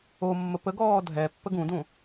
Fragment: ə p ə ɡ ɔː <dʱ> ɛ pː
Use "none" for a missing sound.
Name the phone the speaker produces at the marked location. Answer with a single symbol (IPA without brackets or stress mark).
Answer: dʱ